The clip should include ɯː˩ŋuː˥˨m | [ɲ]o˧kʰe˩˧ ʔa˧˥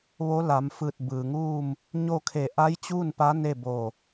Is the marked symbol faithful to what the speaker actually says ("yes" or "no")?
yes